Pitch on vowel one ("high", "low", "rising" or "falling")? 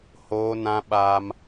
high